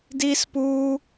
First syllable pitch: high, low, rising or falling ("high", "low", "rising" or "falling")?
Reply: high